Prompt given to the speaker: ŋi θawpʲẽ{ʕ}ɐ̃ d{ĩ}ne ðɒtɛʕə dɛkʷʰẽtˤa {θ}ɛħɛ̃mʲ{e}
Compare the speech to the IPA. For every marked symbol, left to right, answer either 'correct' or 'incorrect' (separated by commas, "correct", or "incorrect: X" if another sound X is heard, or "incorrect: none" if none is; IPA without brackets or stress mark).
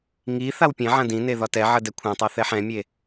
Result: correct, correct, correct, correct